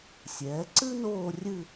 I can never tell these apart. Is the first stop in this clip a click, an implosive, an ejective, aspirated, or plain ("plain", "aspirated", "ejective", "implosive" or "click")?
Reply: click